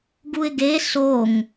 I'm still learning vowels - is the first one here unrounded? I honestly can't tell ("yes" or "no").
no